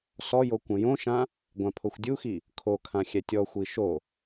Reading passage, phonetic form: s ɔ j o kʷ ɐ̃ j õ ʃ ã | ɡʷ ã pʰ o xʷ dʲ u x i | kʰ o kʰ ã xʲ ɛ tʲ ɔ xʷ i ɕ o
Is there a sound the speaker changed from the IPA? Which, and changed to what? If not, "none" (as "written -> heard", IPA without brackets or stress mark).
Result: ɕ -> ʃ